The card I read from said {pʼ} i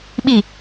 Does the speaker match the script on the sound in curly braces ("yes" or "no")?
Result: no